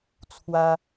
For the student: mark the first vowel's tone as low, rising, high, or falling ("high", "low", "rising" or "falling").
high